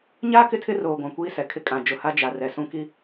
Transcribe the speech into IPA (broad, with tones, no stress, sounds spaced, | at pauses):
ɲ a˦ k ɪ˦ tʰ ɪ˦ r oː˨ ɡʷ ã˨ kʷ iː˦ s ɛ˨ kʰ ɪ˦ kʼ ã˨ d͡ʒ ʊ˨ h a˦ d͡ʒ a˨ r ɛ˨ s ũ˦ k i˦